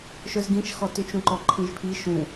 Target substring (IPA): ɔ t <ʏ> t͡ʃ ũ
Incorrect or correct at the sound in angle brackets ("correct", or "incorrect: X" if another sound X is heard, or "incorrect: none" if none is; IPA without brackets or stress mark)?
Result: correct